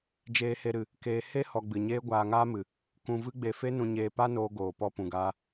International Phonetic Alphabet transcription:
d͡ʒeː˧he˧ɾɨ˨ | keː˧ he˦ hɔ˧ɡ͡bɨ˨ɲeː˦ ɡʷaː˧ŋaː˦mɨ˨ | kũ˧ vɨ˦ɡ͡be˧fe˦nũ˧ ɲeː˧pa˦noː˧ ɡoː˨ pɔ˧pũ˨ɡaː˧

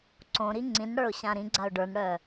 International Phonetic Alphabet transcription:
ǀõɾi ŋ͡ǀĩnɽə˞ʊ̯ ɕãɾĩɡ͡ǀaʊ̯ ɖə˞nɽœ

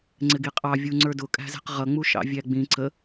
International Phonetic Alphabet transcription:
ŋ͡ǀɪɡiqʼɑ vʲuŋ͡ǀə˞dʊ kʼæ̤zɛ̤qʁʌ ŋ͡muʃɑ̰vʲæɡ͡bĩ ǀə

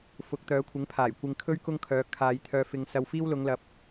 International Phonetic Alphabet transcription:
fʊ˨˥k̚t̪œː˨˥kʷʰɪ˨˥ŋ pʰaː˨˩j kʷɪ˧ŋkʰɵ˥ɥ kʊ˥ŋkʰœː˨˧ kʰaː˨j t̪ʰœː˨fɪ˨ŋsɐ˨w fiː˥wlʊ˨˧ŋlɐ˨˥p̚

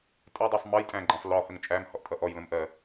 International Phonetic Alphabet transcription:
tʼɛdˤɛsˤ mʌjtʼæ̃ɡ͡ǃæ̃sˤ lɔhəŋ t͡ʃʼæmhɔʔtʼʌ ʔɔjlə̃mʔɜ

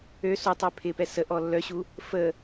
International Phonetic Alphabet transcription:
ø sotˤø pʰɪpɛ sə ʔɔlːœɕu | fə

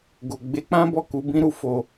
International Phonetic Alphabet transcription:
ɡo˨ɡ͡be˨˦k͡pã˦bɔ˦˨ ku˧bĩ˦ɾu˦ fo˧

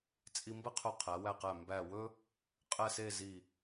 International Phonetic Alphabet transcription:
t͡sʼi˧mbɘ˥qʰɵ˧˩ qʰæ˩˧wæ˧˩qæ˧˩ mbæ˧˩wɵ˥ | qʼɛ˥˧se˥˧ zi˧˩

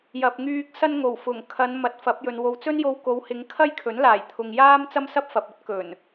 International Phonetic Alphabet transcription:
jɐ˨p̚ŋyː˧k̚ sɐ˧n ŋo˨˩wfʊ˨˩ŋkʰɐ˨˧n mɐ˨t̚ fɐ˨˥p̚jɵ˨n wo˨wt͡sɵ˥njo˧w ko˨˧whɪ˨˧ŋkʰɐ˥jkʰɵ˨˥n laː˨˩jt̪ʰʊ˨ŋ jaː˥mt͡sɐ˥msɐ˥p̚fɐ˨p̚ ɵ˥t̚kɵ˨˩n

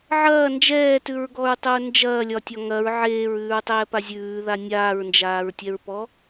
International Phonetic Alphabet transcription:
ʕɐː nd͡ʒɛːtʉɹɡɔɹtˤʊɹ nd͡ʒɐːlʲɒtʲɒ ŋɐɹ ʕeːɹʉːɹtˤɛːpa zʲʉːða nʲaːɹnd͡ʒaːɹtʲɛɹpɔ

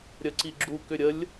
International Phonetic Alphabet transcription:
ɾʲəǀiɡ͡ǁu kʏɾʲəlʲ

